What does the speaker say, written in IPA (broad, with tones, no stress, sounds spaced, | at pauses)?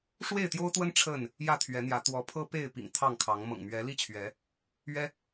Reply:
ʂ w e˥˨ ɪ̯ t̪ j o˦ ʊ̯ t̪ w ə˦ n ʈ͡ʂʰ ə˥˨ n | j ä˥˨ t̪ʰ ɥ ɛ˨˦ n̪ j ä˨˦ t̪ w ɔ˨˦ pʰ ɤ˦ p e˥˨ ɪ̯ p ḭ˨˩ ŋ t̪ʰ ɑ˥˨ ŋ kʰ ɑ˨˦ ŋ m ɤ̰˨˩ ŋ m ɥ ɛ˨˦ l i˥˨ t͡ɕʰ ɥ ɛ˨˦ | ɥ ɛ˦